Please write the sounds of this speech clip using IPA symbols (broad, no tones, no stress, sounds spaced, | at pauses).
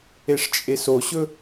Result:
e ʂ t͡ʃʼ e s o ɕ ɵ